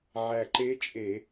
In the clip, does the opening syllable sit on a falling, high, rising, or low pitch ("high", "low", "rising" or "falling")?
low